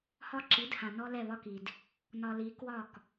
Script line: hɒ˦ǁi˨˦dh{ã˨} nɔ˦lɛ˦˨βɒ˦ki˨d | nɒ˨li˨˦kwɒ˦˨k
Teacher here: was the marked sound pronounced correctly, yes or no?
yes